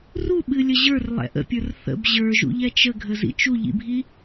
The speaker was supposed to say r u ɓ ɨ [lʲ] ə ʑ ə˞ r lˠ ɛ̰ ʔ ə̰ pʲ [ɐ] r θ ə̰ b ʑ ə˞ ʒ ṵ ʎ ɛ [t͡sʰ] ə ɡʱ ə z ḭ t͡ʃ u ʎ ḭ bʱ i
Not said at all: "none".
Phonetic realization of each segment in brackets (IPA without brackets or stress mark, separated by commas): lʲ, ə˞, t͡ʃ